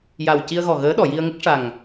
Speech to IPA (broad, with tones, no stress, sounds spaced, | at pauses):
j a˨˩ w c i˧ ə̯ ɣ ɔ˨˩ ɣ əː˧˥ ɗ ɔ˨˩˨ j i˧ ə̯ ŋ ə˦˥ k̚ ʂ a˨˩ ŋ